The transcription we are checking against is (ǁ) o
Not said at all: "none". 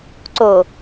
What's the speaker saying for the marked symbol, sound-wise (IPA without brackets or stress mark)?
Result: ǀ